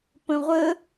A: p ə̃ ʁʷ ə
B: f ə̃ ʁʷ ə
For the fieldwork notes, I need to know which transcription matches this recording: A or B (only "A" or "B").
A